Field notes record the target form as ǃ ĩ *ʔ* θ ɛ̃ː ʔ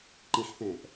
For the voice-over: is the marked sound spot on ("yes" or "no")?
no